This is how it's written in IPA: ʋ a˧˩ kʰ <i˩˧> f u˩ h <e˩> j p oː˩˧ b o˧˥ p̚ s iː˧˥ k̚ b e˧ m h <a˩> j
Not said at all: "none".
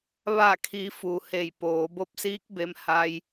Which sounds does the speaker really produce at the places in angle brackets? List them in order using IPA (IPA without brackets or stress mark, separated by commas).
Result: i˩˧, e˧˩, a˧